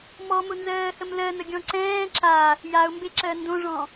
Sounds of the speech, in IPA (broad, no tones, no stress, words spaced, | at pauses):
mɔmʊnzɜːhəm lɜnəɡʲɔ̃ ǀɛ̃ː ǁa | jaʊ̯mbeǁɜ ndõʐɔ̃